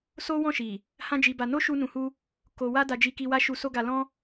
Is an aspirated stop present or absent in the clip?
absent